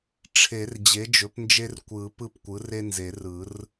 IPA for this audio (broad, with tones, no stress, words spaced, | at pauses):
ʈ͡ʂʰe˨˩˦r d͡ʑe˩˥d͡ʒɵ˩˥pnd͡ʒe˦r kʷɯ˨˩˦ pɯ˦p kʷɯ˩˥re˦nze˨˩˦rɯ˨˩˦r